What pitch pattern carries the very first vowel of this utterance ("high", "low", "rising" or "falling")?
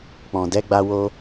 low